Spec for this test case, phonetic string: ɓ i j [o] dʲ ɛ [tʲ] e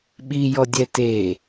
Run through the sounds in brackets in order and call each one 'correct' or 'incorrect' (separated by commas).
incorrect, incorrect